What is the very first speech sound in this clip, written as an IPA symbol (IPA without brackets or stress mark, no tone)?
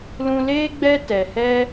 l